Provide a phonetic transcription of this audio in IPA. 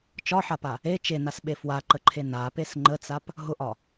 t͡ʃ ɒ ħ a p a | e t͡ʃ e n a s ɓ e f w a ǃ ə ǃʰ e n a p e s ŋ͡ǃ ə t͡s a p | ɦ ʊ ʔ ɒ

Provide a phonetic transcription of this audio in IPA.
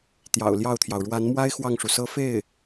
t̪ j ɑ̰˨˩ ʊ̯ l j ɑ˥˩ ʊ̯ t̪ʰ j ɑ˩ ʊ̯ ɻ w a˧˥ n m w a˥ ɪ̯ x w ɑ˥˩ ŋ ʂ u˩ s ɤ˥ f e˥˩ ɪ̯

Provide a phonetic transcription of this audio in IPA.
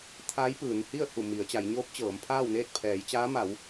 t̪ʰ a˧˥ j p ɯː˩˧ n h i˥˨ ə̯ h u˧˩ m i˩˧ ə̯ t͡ɕ a˩˧ j ɲ oː˧˥ p̚ t͡ɕ ɤː˩˧ m pʰ aː˥˨ w n eː˥˨ t̚ pʰ ɛː˩˧ j t͡ɕ aː˧˥ m a˩˧ w

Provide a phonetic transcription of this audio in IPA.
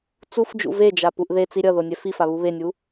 t͡s u f d͡ʒ ṵ v e d͡ʒ a p u ʔ ð e t͡s i ɾʲ ʌ ð o nʲ ɛ f i f a β u β e nʲ u

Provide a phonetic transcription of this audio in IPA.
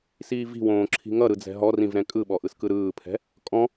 s iː v i̤ w õː ǁʰ i̤ ŋ ʌ ɾ ɯ d͡z ɛ̤ ɦ ɔ r ĩ v ɾ ɛ̃ kʼ ɯ ɓ ɔ ʔ ɯ s k ɯ ɾ ɯː pʰ ɛ̤ | kʼ ɔ̃

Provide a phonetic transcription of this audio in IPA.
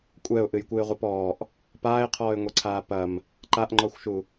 kʷʼ ɛ ʊ̯ ʔ ɨ j kʷ ɨ ɪ̯ ʁʷ ɨ p ɔː ʔ | p aː ɪ̯ qʰ ɔː ɪ̯ ŋʷ e ǀʰ aː p ɐ m | ǃ a ʔ ŋ͡ǃ ɔ xʷ ʃ u

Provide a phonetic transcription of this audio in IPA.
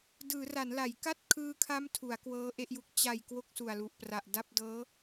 d ɯː˩˦ r a˩˦ n l a˩˦ j k a˥˩ t̚ kʰ ɯː˧ kʰ a˦˥ m tʰ u˩˦ a̯ k w ɤː˦˥ ʔ e˥˩ ʔ j u˦˥ k̚ t͡ɕ a˨˩ j k w o˥˩ k̚ s u˨˩ a̯ l u˨˩ ʔ p r a˨˩ ʔ d a˥˩ p̚ d ɤː˦˥

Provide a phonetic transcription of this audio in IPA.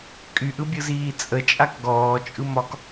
kʼ y ʔ ɯ bʲ ɯ z iː t͡sʼ ə t͡ʃʼ a k ɡ ɔː t͡ʃʼ ɯ m ɒ k

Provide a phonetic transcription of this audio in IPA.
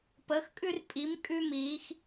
p əː˧˥ x kʼ ʉ˥ r pʼ i˧˥ m kʼ ʉ˥ m iː˧˥ x

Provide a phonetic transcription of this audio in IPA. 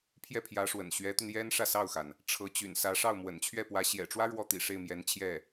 pʰ j ɛ˥˩ pʰ j ä˧˥ ʂ w ə̰˨˩ n ɕ ɥ ɛ˧˥ t̪ y˧ n j ɛ˥ n ʂ ä˥˧ s ɑ˥˩ ʊ̯ x a˩ n | ʈ͡ʂʰ ɤ˧˥ t͡ɕ y̰˨˩ n s ä˧˥ ʂ ɑ˥˩ ʊ̯ m w ə̰˨˩ n t͡ɕʰ ɥ ɛ˥˩ p w ä˧˥ ɕ j ɛ̰˨˩ ʈ͡ʂ w ä˥ ɻ w ɔ˥˩ t̪ ḭ˨˩ ʂ e˥˩ ɪ̯ m j ɛ˧˥ n t͡ɕʰ j ɛ˥˩

